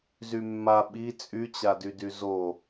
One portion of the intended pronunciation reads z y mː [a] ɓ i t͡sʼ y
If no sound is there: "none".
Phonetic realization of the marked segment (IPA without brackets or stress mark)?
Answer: a